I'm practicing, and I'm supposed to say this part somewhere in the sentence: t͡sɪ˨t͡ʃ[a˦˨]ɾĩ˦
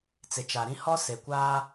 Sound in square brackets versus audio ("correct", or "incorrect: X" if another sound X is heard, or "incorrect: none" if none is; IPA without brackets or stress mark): incorrect: a˨